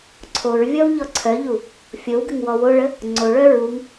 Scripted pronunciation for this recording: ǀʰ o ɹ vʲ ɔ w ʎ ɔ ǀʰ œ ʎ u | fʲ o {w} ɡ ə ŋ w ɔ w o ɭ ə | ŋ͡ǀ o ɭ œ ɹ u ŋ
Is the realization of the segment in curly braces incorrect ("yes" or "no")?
no